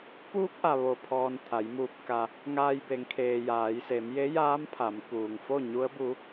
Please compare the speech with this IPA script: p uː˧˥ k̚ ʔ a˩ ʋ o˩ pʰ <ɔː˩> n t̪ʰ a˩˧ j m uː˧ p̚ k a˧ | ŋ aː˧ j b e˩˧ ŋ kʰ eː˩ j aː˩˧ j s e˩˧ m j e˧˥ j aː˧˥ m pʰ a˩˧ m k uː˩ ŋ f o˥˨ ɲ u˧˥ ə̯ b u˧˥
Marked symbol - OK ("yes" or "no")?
yes